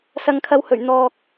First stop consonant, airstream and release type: aspirated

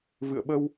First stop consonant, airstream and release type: implosive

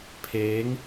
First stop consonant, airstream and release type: aspirated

